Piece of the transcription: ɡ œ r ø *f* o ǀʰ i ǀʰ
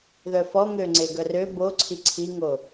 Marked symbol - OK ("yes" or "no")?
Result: no